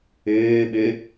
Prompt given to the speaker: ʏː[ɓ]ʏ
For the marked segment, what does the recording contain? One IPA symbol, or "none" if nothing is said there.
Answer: ɓ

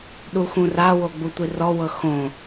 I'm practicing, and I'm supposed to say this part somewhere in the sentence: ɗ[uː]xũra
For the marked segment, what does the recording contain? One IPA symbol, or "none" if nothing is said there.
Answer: u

